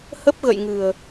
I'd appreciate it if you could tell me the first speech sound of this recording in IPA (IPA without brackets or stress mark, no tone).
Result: h